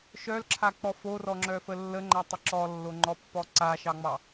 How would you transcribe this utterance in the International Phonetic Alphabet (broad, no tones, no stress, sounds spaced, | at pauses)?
ʃ œ l ǁʰ a k͡p ɔ f o r ɔ ŋ͡ǁ œ f ə lː ə ŋ͡ǃ a tˤ ə ǁ ɔ lː o ŋ͡ǃ ɔ pː ɔ ǀ a ʃ ɑ ŋ͡m ɑ